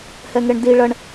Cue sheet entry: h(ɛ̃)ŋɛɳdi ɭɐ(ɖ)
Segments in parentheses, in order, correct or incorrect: incorrect: ɛ, incorrect: ɳ

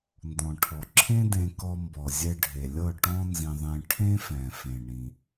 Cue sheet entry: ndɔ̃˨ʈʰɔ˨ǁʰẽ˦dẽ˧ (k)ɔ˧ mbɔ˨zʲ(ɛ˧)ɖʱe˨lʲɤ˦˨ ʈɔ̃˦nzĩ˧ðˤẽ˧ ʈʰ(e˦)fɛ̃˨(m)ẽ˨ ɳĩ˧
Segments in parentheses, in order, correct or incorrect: correct, correct, incorrect: ẽ˦, incorrect: f

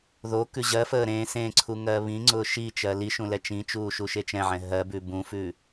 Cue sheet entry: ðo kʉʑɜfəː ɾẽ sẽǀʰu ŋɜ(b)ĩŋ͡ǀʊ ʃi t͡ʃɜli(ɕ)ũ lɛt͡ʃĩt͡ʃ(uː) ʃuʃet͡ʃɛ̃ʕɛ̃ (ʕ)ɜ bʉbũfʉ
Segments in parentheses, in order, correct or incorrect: incorrect: β, incorrect: ʃ, correct, incorrect: ɦ

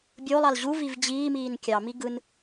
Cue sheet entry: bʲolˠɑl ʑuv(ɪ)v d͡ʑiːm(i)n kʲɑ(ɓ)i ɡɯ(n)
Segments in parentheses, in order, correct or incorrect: incorrect: i, incorrect: iː, incorrect: m, correct

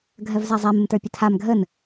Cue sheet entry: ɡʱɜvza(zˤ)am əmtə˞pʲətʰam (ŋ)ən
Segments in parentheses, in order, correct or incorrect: correct, incorrect: ɡʱ

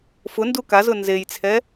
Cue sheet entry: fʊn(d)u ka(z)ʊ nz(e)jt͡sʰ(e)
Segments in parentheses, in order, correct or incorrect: correct, correct, correct, incorrect: ɛ

